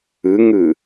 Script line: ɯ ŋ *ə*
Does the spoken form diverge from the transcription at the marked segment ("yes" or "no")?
yes